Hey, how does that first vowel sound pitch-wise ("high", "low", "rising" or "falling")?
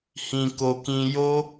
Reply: low